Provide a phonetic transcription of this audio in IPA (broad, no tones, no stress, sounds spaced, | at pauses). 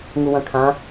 ŋ u w ɐ̃ kʰ ã